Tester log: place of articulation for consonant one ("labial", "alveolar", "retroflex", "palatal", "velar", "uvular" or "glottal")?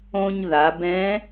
palatal